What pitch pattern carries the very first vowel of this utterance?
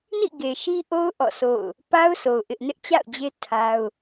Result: falling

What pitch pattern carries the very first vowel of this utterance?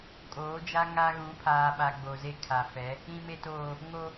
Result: rising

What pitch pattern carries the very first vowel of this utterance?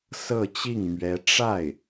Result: falling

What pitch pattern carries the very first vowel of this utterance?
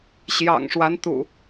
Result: low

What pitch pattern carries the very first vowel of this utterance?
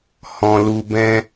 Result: low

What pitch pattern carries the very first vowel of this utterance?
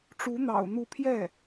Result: rising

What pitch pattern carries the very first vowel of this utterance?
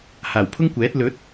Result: low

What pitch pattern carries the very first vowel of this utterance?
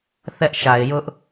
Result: high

